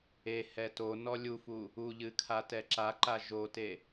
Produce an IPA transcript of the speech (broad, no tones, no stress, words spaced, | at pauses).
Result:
e hɛtonɔ lʲufu | uʎɨ kʰatɛǁaǃa ʒote